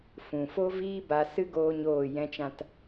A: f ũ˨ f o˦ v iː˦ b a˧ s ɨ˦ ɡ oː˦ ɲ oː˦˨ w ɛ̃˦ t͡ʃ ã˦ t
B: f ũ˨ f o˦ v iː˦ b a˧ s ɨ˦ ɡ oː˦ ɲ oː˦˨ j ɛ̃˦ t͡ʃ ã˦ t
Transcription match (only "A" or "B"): B